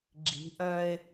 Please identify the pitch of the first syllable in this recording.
rising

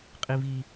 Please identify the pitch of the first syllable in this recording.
high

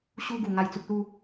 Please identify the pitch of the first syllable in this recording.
high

